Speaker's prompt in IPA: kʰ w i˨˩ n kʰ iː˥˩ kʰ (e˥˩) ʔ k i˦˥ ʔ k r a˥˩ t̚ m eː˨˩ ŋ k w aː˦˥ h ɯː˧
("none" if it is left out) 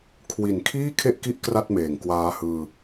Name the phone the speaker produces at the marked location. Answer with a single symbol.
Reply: e˥˩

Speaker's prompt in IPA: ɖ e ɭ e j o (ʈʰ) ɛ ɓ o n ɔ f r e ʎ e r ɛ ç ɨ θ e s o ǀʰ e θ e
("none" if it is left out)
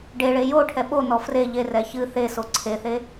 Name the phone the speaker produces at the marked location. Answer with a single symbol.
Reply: ʈʰ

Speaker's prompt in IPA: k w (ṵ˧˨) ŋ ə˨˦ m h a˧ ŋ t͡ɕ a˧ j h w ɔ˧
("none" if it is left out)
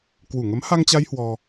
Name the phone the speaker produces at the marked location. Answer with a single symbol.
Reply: u˧˩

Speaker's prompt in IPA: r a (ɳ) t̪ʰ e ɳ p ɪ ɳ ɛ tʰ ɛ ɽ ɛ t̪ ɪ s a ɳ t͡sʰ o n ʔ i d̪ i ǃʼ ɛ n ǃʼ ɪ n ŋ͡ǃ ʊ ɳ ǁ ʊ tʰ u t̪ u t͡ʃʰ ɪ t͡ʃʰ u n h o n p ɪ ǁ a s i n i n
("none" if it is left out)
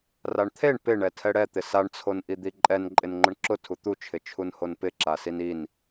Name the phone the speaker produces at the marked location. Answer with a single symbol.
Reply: ɳ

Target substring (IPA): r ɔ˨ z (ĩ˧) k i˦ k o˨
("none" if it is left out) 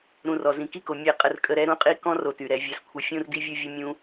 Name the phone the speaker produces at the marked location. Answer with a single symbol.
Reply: ĩ˧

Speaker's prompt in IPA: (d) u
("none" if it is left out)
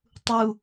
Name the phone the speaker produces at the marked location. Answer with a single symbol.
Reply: tˤ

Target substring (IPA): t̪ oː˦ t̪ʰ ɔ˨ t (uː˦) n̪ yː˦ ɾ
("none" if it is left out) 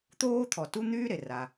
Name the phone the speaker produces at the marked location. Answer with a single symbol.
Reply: u˦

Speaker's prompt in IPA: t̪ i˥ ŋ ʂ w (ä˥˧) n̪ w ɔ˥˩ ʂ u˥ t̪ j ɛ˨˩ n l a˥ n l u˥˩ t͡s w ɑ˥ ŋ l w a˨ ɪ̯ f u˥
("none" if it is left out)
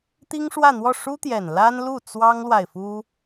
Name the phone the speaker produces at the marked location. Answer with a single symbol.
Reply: ä˥˧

